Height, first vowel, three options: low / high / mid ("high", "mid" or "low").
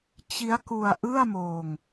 high